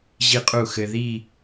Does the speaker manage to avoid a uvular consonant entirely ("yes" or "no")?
no